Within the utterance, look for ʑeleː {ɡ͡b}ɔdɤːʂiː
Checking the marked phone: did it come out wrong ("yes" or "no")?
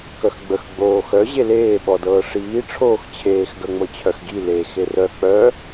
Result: yes